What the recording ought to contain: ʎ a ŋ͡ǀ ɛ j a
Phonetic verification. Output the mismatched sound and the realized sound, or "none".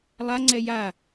ʎ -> lˠ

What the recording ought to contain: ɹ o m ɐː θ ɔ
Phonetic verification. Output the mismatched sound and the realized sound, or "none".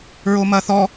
none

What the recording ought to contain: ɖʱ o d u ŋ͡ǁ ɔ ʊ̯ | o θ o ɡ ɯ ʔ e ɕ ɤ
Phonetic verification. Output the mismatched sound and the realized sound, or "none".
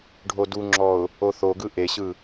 ɤ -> ɯ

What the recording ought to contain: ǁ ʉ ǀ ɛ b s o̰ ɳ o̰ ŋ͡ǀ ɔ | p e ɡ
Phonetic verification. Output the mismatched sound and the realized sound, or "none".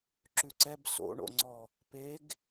none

